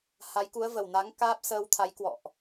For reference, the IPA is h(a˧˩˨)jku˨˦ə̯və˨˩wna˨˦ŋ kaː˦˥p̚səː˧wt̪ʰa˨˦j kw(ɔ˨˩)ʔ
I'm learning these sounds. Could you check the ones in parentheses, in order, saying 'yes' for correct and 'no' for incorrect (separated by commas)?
no, no